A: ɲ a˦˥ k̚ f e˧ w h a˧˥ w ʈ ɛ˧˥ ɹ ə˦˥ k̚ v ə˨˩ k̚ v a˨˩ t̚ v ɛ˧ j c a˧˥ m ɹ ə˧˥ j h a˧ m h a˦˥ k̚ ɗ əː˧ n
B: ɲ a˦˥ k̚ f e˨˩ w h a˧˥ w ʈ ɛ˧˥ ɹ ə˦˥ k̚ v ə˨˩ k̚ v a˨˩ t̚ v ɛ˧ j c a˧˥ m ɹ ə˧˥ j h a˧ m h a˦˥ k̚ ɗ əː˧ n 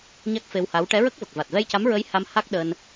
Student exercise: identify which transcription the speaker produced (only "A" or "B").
A